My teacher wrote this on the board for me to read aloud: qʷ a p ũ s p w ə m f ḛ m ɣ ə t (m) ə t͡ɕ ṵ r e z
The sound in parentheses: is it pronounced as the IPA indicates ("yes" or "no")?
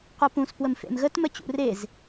yes